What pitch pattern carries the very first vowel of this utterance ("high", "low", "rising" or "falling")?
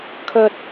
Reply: low